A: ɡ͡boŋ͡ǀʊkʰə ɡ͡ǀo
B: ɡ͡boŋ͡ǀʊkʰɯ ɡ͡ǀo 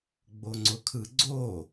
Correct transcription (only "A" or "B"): B